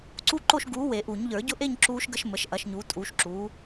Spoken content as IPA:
ǀ u˦˥ ǃ o˥˧ ʃ ɡ uː˨˥ w e˨˩˦ ʔ u˨˩˦ ɲ ʎ ə˞˨˩˦ ɟ ʊ˦˥ ʔ e˥˧ ɲ ǁ uː˦˥ ʃ ɡ ə˦˥ ʃ m ə˨˥ ʃ ʔ ɐ˨˥ ʃ ɲ uː˨˥ tʼ uː˨˥ ʃ ǁ uː˨˥

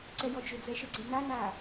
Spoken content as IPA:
ǀ ɛ j ɔ d͡ʒ ʏ d͡z ɛ ʃ ə ɡ͡ǀ e n a n aː

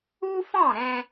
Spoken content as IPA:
u˦ f ɔ̃˦˨ ɾ ɛ̃˧

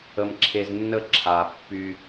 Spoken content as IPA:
ə˧ m ǁʰ e˧ z nː ə˦˨ ǁʰ a˨ pː y˧

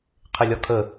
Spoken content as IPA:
qʰ ɪ lʲ ɒ kʰ ə

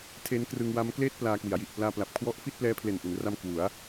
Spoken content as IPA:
tʰ e˦˥ n k r ɯ˧ ŋ w a˦˥ m k l eː˥˩ t̚ p l aː˧ k w i˩˦ a̯ j i˨˩ ʔ p l aː˧ p l a˨˩ p̚ kʰ w ɔ˦˥ ʔ f i˥˩ t̚ p l ɛː˦˥ pʰ l e˨˩ n ʔ u˩˦ n r a˧ m k w u˩˦ a̯

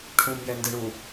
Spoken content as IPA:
ʈʰ ũ m j ɛ n d ɨ ɳ u

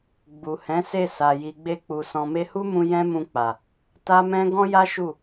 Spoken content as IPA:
ɡ͡b u˨ h ɛ̃˨˦ s e˦˨ s a˨ j i˨ ɡ͡b e˧ k͡p u˨ s ɔ̃˨ m e˧ h u˦ m ũ˧ j ɛ̃˦ m ũ˧ k͡p a˨ | t a˦ m ɛ̃˦ ɡ ɔ̃˦ j a˦ ʃ u˦˨

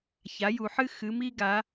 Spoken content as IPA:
ç a˩˧ j u˨˩ ħ ɨ˦ x ɨ˩˧ m i˦ ɡ a˩˧

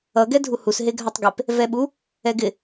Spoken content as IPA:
ʌ ɡ ɛ dʱ u h u s ɦ e ɡʱ a tˤ ɡ e p | v ɛ ɓ u | ɛ ɡ ɪ

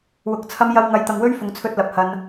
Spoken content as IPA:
w ʊ˨ k̚ t͡sʰ ɐ˧ m j ɐ˧ w ŋ ɐ˧ j t̪ ɐ˧ ŋ w ɵ˥ ɥ f ʊ˨˧ ŋ t͡sʰ ɵ˧ t̚ l ɐ˨ p̚ h ɐ˧ n

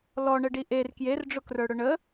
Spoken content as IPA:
l ɔ ɳ ə ɖ i ʔ e r k j e r ɖ͡ʐ ʊ k r ə˞ ɽ ʊ ɳ ə

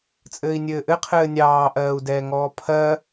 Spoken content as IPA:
t͡sʼ ɘː i̯ nʲ ɘː ʔ ɘ qʰ ɘː nʲ ɑː ʔ ɜː u̯ d ɛː ŋ ɔː pʰ ɜ

